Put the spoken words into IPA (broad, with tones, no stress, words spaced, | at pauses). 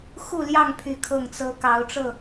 xu˥˨ljɑ˥˨ŋpʰy˨˦ kʰɤ˥˨ŋt͡sɤ˦ kɑ˨˦ʊ̯ʈ͡ʂɤ˥˨